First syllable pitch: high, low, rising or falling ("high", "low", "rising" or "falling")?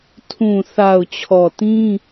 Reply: low